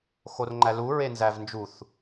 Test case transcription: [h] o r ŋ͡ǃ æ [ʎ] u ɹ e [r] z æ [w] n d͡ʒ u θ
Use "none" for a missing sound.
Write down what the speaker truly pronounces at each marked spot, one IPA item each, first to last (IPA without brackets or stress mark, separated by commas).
x, l, n, v